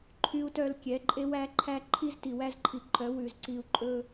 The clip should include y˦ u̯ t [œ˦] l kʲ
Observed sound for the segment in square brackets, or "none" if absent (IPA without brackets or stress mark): œ˦